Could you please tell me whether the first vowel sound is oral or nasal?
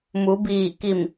oral